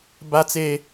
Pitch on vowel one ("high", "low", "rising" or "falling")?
high